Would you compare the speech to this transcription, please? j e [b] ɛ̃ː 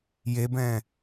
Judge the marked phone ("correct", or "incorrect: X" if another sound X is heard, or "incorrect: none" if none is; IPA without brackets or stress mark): correct